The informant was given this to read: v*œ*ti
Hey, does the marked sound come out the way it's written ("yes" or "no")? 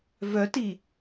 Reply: yes